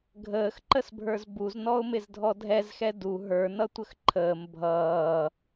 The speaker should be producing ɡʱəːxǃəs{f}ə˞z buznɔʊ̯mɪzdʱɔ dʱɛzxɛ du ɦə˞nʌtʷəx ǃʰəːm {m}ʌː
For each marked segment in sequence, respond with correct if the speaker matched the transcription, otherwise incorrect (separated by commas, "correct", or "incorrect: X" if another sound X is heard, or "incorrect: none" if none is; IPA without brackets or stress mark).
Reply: incorrect: bʱ, incorrect: bʱ